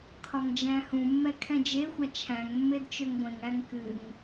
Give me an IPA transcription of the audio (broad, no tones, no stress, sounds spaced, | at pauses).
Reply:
kʰ ɒ ŋ d͡ʒ æ̃ h ũ mː ɛ kʰ ɛ̃ d͡ʒ e xʷ a t͡ʃʰ æ̃ ŋ mː e d t͡ʃ ø ŋ ɡʷ ẽ ŋ æ ŋ k ɨ ŋ